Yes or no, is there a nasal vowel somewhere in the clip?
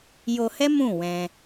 yes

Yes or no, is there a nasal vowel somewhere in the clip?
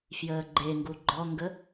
no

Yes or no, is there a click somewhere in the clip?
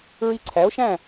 yes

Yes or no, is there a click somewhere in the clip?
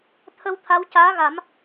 no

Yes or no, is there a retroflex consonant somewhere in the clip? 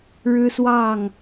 yes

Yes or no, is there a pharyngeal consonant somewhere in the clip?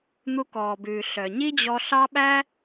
no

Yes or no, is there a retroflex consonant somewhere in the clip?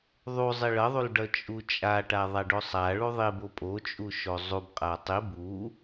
yes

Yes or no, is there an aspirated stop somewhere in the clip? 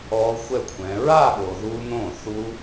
yes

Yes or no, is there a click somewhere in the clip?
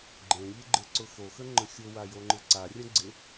yes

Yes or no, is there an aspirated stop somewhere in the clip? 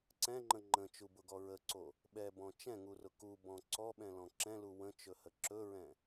no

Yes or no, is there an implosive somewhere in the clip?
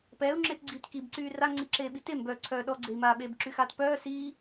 yes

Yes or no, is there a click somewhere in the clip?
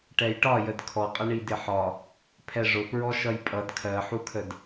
no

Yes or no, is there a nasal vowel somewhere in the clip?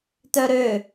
no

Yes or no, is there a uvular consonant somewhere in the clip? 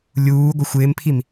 no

